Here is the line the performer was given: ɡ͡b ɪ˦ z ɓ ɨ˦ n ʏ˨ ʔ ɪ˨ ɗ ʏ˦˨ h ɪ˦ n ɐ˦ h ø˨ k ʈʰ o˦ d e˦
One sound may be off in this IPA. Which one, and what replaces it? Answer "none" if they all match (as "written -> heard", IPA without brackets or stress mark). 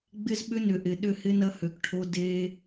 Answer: ɨ˦ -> ʏ˦